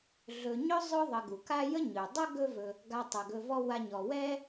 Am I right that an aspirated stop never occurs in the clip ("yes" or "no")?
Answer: yes